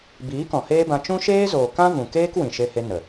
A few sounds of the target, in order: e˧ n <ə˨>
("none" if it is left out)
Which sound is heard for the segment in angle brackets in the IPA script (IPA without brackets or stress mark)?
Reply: ə˨